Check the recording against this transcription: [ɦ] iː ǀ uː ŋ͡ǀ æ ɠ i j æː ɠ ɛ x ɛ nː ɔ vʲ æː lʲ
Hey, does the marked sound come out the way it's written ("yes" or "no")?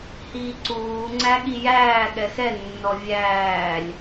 no